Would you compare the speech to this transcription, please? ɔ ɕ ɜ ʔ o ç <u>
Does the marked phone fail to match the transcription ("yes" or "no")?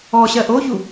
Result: no